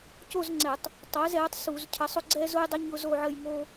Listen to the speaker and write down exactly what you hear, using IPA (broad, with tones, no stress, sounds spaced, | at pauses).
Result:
c o˥˧ z ŋ͡ǀ ɛ˧˩˧ tˤ | tˤ ɛ˨˥ z ɛ˨˥ tˤ s u˧˩˧ z cʰ ə˨˥ sˤ ʊ˥˧ ɡ͡ǀ ɛ˥ z ʊ˥ j dˤ ɪ˥ ɲ ʊ˥ z o˥˧ ʕ ə˥˧ j ŋ o˥